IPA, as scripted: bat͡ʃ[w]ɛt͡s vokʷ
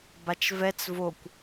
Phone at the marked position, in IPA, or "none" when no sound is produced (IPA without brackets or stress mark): v